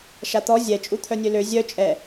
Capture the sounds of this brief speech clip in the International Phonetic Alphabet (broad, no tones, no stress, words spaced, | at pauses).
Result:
ʃat̪ɔ zʲɛ t͡ʃʼut̪ʰœnʲølø zʲœ t͡ʃʼɛ